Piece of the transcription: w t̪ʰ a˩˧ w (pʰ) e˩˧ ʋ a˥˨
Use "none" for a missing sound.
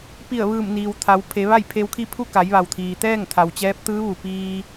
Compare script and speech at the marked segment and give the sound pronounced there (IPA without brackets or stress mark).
pʰ